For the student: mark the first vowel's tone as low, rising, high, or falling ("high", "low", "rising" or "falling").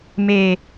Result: low